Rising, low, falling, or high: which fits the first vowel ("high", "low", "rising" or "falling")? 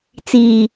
low